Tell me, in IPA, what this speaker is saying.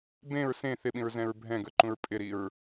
b ẽ ɹ s ẽ θ ɪ ɓ ĩ ɹ z ɛ̃ ɹ bʱ ɛ̃ ɡ ə˞ ǃ ũ ɹ pʼ ɪ ɾ i ɹ

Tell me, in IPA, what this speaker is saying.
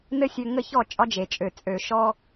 n ɘ˦ sʲ ø˧ ŋ ə˦˨ ç ɔ˦˨ t͡ʃʼ ɒ˦ d͡ʒ e˨ t͡ʃʼ ø˨ t͡sʼ ø˨ ʃ ɔ˧

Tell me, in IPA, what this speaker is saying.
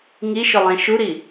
ŋ i ʃ ʊ lˠ ẽ ʃ u ɾ i

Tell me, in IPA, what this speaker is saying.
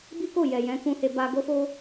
b i˦ k o˦˨ j ɛ˨ j ɛ̃˨˦ k ũ˧ h e˧ b a˧ ɡ o˦ f o˦

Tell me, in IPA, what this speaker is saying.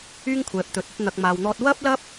yː˥ ŋ kʷʰ ɛː˨ p̚ t̪ ɵ˨˥ t̚ ɐ˧ t̚ n̪ ɐ˨ k̚ m aː˨ w n̪ ɔː˧ t̚ w ɐ˥ p̚ l ɐ˥ p̚

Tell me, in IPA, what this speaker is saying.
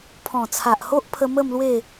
pʰ ɔ̃˨˩ t͡sʰ a˨ ʔ h o˦ ʔ pʰ ə˧ m ə˥˧ m l w e˥˧

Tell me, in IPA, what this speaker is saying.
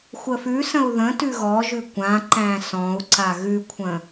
xʷ ə f ʉ s ə̃ u̯ ð ə̃ t ʉ ɣ ɔ ʒ ʉ kʷ ã ǃ æ̃ s ɔ̃ u̯ ǀ a ɣ ʉ kʷʰ ə̃

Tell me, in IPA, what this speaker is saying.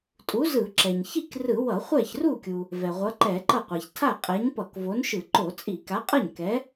tʼ u˨˥ z ɯ˧˩˧ ǁ ɛ˩ ɲ ç i˥˩ k r ɯ˧˩˧ w ʌ˧˩˧ χʷ ɛ˥˩ ç r u˥˩ kʲ u˩ | v ɛ˩ ʁʷ ʌ˨˥ ǃ ɛ˧˩˧ ǃ ʌ˥˩ qʷ a˩ ç tʰ a˥˩ qʼ ɛ˨˥ ɲ p ʌ˧˩˧ k v o˨˥ n ʃ ɯ˧˩˧ ǃ o˧˩˧ t͡sʼ i˧˩˧ k a˨˥ qʼ ʌ˥˩ ɲ k ɛ˨˥

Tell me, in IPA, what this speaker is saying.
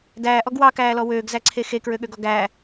d æː ʔ ɔ ɡ w ɑ k æː l ɔ w øː ɡ z æ ǀʰ e x e k ɹ ø ɠ ø ɡ ɔ ɡ æ

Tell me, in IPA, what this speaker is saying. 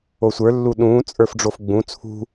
o sʷ ə˞ lː u ɗ ũː t͡sʼ ə˞ f ɖ͡ʐ o f ɡ͡b ũ t͡sʰ ṳ

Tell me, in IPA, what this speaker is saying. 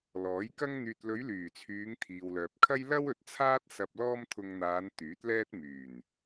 l ɔː˨˥ j k ɐ˧ ŋ n̪ yː˨ t̚ l ɵ˨˧ ɥ l yː˨˩ t͡sʰ yː˨˧ ŋ t̪ʰ iː˨ w l œː˨ p̚ kʰ ɐ˥ j l ɐ˥ w ɵ˨ t̚ t͡sʰ aː˥ t̚ s ɐ˧ p̚ l ɔː˥ m t̪ʰ ʊ˧ ŋ n̪ aː˨˧ n t̪ yː˨˥ t̚ l ɛː˥ t̚ m yː˨˩ n

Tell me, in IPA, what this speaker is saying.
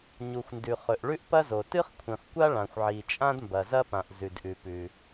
ɲ u˩ xʷ n d ʉ˩ χ ɵ˩ ʔ ɭ ʉ˥ ʔ p ɐ˥ z o˩ t ɨ˥ χ kʷʰ ĩ˩ χ kʷ a˥ ɭ ã˩ xʷ ʕ i˩ t͡ʃʼ ã˥ d m b ɐ˩ z ɐ˥ p ã˩ ʔ z ʉ˩ d ʔ ʉ˩ p ʉ˩

